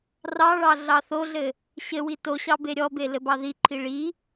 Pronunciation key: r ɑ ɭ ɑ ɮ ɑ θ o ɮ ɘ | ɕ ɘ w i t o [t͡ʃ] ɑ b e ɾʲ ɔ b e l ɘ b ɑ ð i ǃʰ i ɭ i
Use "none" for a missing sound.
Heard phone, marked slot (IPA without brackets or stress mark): ɕ